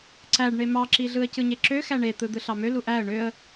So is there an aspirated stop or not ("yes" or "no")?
no